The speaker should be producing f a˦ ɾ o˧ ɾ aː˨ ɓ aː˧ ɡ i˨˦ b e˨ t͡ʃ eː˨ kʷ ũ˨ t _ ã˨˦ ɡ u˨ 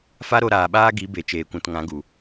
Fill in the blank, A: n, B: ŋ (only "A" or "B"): B